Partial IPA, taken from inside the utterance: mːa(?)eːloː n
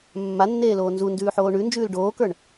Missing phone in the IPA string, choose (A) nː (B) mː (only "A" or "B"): A